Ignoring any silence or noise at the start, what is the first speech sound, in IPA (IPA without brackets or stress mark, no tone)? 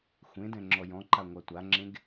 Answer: xʷ